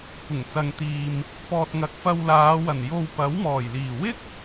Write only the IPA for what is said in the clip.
kʷɪ˨˩ŋt͡sɐ˨ŋt̪iː˨m | pɔː˨t̚ŋɐ˨k̚ fɐ˧wlaː˨˧wɐ˨˩n jo˧wpɐ˨˥w mɔː˨˩jliː˨˩wɪ˥k̚

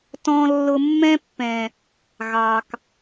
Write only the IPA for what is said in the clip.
tɔ̃˨lːʊ˨ mːɛ̃˧pːɛ̃˨ | ɣɑ˨k

